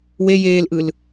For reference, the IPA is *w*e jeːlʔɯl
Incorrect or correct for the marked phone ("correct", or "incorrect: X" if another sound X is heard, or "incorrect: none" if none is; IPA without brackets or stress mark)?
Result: correct